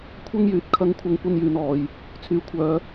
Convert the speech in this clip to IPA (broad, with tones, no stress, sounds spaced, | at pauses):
kʷʰ ɐ˥ ŋ j yː˨ t̚ kʰ ɐ˨˥ ŋ kʷʰ ɐ˨˧ ŋ kʷ ɐ˥ n j yː˧ n ɔː˨˧ j | t͡sʰ yː˨ kʷʰ œː˨˧